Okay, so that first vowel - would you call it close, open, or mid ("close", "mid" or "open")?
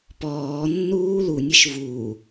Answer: mid